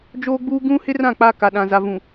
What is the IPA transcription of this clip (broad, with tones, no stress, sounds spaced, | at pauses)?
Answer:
d͡ʒ oː˦ ɡ͡b uː˦ ɡ ũ˦ h ɪ˦ r ã˦˨ k͡p a˦ k a˨ ɗ ã˨ z a˨ v ũ˨